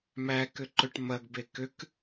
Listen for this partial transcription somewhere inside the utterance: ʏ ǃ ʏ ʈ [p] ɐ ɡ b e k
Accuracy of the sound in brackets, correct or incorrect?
incorrect